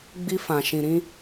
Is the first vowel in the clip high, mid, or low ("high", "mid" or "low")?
high